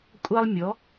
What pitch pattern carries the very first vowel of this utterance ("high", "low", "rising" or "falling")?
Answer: high